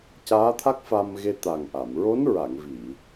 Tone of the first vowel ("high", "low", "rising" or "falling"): rising